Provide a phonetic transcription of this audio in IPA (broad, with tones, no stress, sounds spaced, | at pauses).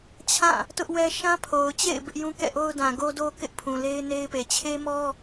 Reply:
t͡ɕʰ ã˦˨ | t ʊ˦ ʔ w ɛ˦ ʃ ã˦ pʰ o˨ ʊ̯ t͡ɕ ḛ˦˨ ɪ̯ b ɪ˦ ʔ j ũ˦ k ɛ̰˦˨ ʔ o˦ ʊ̯ d ã˨ ɡ o˦ d o˦ k ɪ˦ ʔ pʰ ũ˨ l e˦ ɪ̯ n e˦ ɪ̯ p e˨ t͡ɕʰ e˦ m ɔ˦